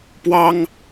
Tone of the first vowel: high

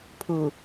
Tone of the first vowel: low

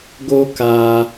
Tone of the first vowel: high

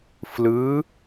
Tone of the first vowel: rising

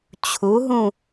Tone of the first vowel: rising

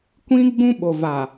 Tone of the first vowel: high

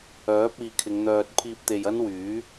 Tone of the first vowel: rising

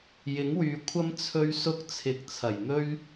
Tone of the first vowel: rising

